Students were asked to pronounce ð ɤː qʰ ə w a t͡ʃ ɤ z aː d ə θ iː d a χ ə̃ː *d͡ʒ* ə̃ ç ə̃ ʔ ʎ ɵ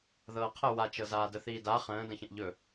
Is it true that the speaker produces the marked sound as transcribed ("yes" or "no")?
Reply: no